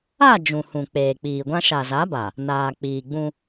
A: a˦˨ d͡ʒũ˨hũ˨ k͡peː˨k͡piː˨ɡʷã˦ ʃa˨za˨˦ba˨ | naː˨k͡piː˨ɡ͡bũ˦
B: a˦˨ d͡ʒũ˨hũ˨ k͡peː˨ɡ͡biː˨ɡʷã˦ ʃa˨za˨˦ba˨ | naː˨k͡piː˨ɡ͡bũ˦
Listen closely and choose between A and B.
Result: A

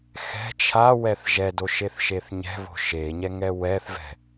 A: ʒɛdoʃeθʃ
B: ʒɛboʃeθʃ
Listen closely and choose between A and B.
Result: A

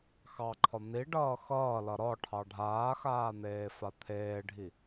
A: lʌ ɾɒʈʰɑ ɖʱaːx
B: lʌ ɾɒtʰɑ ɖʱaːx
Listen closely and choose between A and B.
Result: A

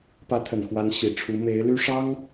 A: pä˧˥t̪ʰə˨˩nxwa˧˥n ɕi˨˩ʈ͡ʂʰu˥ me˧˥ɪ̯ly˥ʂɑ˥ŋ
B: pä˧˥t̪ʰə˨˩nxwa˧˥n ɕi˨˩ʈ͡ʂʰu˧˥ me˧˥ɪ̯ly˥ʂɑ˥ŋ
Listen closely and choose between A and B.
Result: B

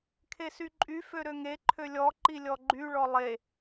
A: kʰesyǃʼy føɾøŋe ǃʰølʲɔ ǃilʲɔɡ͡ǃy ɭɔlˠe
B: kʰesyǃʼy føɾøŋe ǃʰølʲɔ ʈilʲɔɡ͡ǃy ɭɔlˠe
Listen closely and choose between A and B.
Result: A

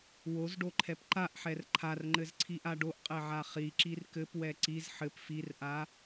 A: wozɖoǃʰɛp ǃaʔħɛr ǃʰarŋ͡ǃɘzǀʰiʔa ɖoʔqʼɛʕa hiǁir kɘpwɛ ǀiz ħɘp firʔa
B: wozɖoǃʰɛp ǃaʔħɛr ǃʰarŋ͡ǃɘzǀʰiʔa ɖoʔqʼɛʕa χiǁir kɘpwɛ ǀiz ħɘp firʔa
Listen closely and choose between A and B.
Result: B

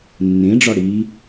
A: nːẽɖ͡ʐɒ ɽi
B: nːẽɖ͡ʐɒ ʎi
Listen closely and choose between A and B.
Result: A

